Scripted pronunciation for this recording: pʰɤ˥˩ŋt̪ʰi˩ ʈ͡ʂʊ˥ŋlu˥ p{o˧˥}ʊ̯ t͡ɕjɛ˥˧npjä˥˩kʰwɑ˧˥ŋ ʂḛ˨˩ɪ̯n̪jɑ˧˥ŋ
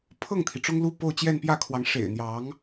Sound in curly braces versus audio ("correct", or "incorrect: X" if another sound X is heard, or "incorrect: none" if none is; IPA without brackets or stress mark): incorrect: o˥˧